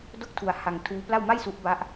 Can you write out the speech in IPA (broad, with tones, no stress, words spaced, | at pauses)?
do˥˩k̚tʰu˧a̯ ha˧ŋtʰuː˦˥pla˥˩w ma˥˩jsu˦˥ʔba˦˥ʔ